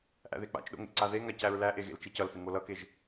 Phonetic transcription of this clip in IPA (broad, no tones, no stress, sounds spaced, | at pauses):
ʔ æ̰ ð e k͡p a̰ t͡ʃ ɗ o̰ ŋ ḛ ǀ a ð e ŋ a c æ ɹ l æ ʔ e ɣ ḛ l t͡ʃ e c ʌ l θ ɪ ŋ o l ʌ k e ʒ